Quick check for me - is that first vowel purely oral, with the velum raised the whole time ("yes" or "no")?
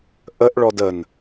yes